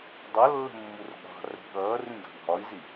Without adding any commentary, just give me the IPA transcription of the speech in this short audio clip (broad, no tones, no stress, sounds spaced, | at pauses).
dˤ ʌ lː ə̤ mː u r ɠ ɑ̤ r ə̤ ɠ ʌː r ĩ ɡ ɑ̤ ɡʱ ɒ i̯ z i